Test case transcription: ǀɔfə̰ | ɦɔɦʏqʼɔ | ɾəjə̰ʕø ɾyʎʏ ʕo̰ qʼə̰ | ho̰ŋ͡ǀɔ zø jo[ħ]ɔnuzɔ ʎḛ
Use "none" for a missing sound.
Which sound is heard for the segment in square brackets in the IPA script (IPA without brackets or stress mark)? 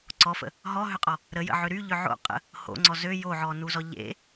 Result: ʕ